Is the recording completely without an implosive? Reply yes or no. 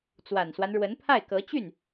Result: yes